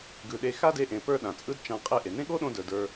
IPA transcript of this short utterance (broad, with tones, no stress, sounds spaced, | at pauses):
ɡ ɯ˧ ɗ e˧ x a˦ d e˧ ʔ ẽ˨ p ə˞˦ ɗ ã˨ t͡sʼ ɯ˦ d t͡ʃ ã˧ qʼ e˦ ʔ e˨ n ẽ˦ ɠ o˦ ɗ õ˧ d ə˞˨ d ə˞˧